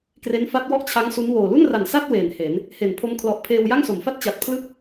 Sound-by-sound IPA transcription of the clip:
k r e˦˥ n f a˦˥ t̚ w ɔ˥˩ ʔ t͡ɕʰ a˦˥ ŋ s u˦˥ n w oː˨˩ l u˥˩ n r a˨˩ n s a˥˩ t̚ w eː˨˩ n h e˩˦ n | h e˨˩ n pʰ o˦˥ m kʰ l ɔ˨˩ ʔ pʰ eː˧ w j a˥˩ ŋ s o˩˦ m f a˥˩ t̚ t͡ɕ a˨˩ t̚ pʰ l ɯ˥˩ k̚

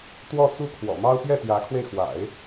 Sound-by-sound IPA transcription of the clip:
t̪ w ɔ˥˧ t͡s u˥˩ kʰ w ɔ̰˨˩ m ɑ˥ ʊ̯ p j ɛ˥˩ t̪ j ä˧˥ kʰ w e˧ ɪ̯ x w a̰˨˩˦ ɪ̯

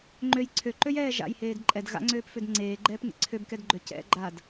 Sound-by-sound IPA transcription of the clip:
ŋ͡ǃ ø j ǀʰ ø ǃ ø j ɛː ʒ a̰ j h eː d ǃʼ ɛ d ɣ a̰ ŋ͡ǀ øː p f ø d ŋ͡ǀ eː ɡ͡ǃ ɛː p ŋ ḛ ǀʰ ø b k ɛ d ɡ͡ǃ ø c ɛ̰ ɡ͡ǃ a d

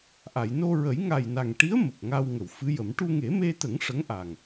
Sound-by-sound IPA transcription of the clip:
ʔ a˨˩˨ j n o˧ ɹ ə˨˩˦ j ŋ a˨˩ j n a˨˩ ŋ ʈ i˧˥ ə̯ m ə˨˩ k̚ ŋ a˧ w ŋ ə˨˩˨ w f ɨ˧˥ j ə˨˩˦ m ʈ u˧ ŋ e˨˩˦ m e˧ t̪ ə˨˩˦ ŋ ʂ ə˧˥ ŋ ʔ a˨˩ ŋ

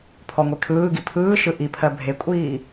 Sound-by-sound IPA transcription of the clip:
pʰ ɔ ŋʷ e kʰ ɯː ɡ i pʰ ɯː ʃ ɯ ʔ i pʰ ɜ bʱ e kʷʼ iː

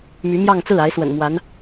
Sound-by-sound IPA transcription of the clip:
m y˧˥ m j ɑ˥˧ ŋ t͡s ɹ̩˥˩ a˧˥ ɪ̯ s w ə̰˨˩ n m w a˧˥ n

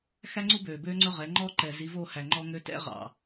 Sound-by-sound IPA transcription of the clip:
x æ˦ ŋ͡ǀ u˦ b øː˨ b øː˦ ŋ͡ǀ ɵ˦ ʁ ɛ˨˦ ŋ͡ǃ ɔ˦ ǃ ɛ˨ z i˨˦ v o˦˨ h æ˨ ŋ͡ǃ ɔ˦ ŋ ø˦ t ɛ̰˦ ʁ ɑ̰˨

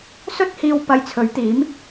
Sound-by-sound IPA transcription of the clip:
s ɵ˥ t̚ h iː˧ w p ɐ˧ j t͡sʰ ɵ˨˥ ɥ t̪ iː˨˥ m

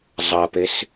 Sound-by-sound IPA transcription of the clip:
zˤ ɐ p e s

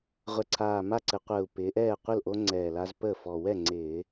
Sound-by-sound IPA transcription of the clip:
ʁʷ ɛ˨˩ ǀʰ aː˨˩ m a˥˩ ǀ ɘ˧˩˧ qʷ əː˨˩ u̯ p ɪː˩˧ ʔ ɛː˥˩ qʷ ɘ˥˩ l ʔ o˦ ŋ͡ǀ ɛː˨˩ l a˦ z p əː˥˩ f ɔ˨˩ w ɛ˥˩ ŋ͡ǀ ɪː˧˩˧

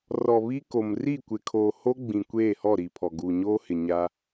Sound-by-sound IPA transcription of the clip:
r ɔ˨ β i˦ k o˨ m r i˦˨ kʷ ɪ˨ kʰ oː˨ h o˦ ɡ͡b ĩ˨ kʷ eː˦˨ h ɔ˦˨ ɾ i˨ pʰ ɔ˨ ɡ uː˨ ɲ oː˦ h ɪ˨ ɲ a˦

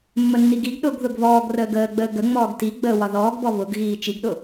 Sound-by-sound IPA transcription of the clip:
mː ə nː i ɡ i ɡ ɗ ʊː ɡ ð ʊ ɡ β ɔː ɡ r əː ɡ əː ɡ͡b əː ɡ ə ŋ͡m ɔː ɡ t i ɡ͡b əː w ɒ ð ɔː ɡ b ɔ β ʊ ɡ ɣ iː t͡ʃ i ɡ ɗ ʊ

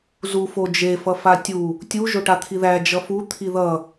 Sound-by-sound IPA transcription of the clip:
z u f o d͡ʒ e f ʌ f a tʲ u | tʲ u ʒ o ʈ a t̪ʰ i ð æ d͡ʒ ʌ f u t̪ʰ i ð ʌ

